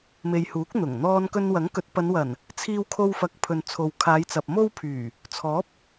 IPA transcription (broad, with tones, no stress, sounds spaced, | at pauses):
m e˨ j h uː˨˥ k̚ n̪ ʊ˨˩ ŋ n̪ ɔː˧ n k ɵ˧ n w ɐ˨˥ ŋ k ɵ˨˥ t̚ p ɐ˨˧ n w ɐ˨˩ n | t͡sʰ iː˥ w kʰ o˥ w f ɐ˧ k̚ pʰ ɵ˨ n t͡sʰ o˨ w kʰ aː˨˧ j t͡s ɐ˨ p̚ m o˥ w pʰ yː˨˩ | t͡sʰ ɔː˨˥ p̚